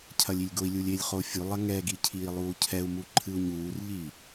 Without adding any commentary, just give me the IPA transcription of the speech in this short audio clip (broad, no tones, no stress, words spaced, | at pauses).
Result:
cʰɐlʲilʲɡoi̯lʲulʲ elʲ χofʲulˠɐ ŋɛɡi cʰiːlˠuːcʰɛu̯mu ǃʰɨu̯ɲuːrʎiː